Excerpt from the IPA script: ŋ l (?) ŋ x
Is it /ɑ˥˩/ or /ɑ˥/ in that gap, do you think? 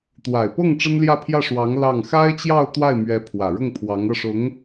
ɑ˥˩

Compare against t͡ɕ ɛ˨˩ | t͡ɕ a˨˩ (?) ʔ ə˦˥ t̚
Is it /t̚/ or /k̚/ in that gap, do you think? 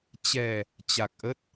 k̚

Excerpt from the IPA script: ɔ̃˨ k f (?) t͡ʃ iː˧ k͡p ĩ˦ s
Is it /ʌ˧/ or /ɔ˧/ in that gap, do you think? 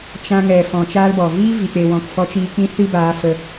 ɔ˧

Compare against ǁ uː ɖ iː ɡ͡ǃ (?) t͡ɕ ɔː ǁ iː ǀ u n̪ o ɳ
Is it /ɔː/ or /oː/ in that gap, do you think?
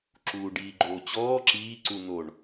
oː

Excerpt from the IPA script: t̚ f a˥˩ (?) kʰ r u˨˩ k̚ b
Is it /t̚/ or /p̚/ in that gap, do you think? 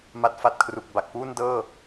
t̚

